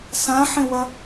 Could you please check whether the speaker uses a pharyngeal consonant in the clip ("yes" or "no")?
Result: yes